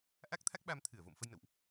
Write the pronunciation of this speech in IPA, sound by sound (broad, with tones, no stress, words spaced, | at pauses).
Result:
ʔa˦˥k̚t̪ʰa˦˥k̚ɓa˧m t̪ʰɨ˧˩ə̯vo̰˧˨m fə˧jnə̰˧˨wʔ